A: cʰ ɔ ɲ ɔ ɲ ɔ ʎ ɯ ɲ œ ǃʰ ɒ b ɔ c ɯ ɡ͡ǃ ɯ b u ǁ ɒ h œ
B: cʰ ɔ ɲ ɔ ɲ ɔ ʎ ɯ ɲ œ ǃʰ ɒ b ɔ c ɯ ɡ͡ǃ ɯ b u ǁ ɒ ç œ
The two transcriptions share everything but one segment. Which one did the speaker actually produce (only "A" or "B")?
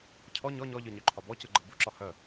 A